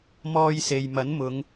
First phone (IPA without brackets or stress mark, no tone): m